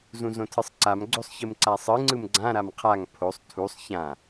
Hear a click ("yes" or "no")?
yes